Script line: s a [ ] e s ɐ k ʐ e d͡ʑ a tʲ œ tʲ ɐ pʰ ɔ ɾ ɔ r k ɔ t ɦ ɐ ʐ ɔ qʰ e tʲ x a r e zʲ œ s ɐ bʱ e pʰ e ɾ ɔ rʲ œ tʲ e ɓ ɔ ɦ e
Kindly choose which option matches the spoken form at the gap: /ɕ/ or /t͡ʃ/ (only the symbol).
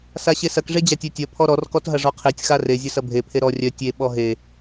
ɕ